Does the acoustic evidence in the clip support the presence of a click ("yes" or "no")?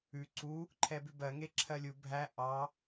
yes